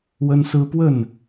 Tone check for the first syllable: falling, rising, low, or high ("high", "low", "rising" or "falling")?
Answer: high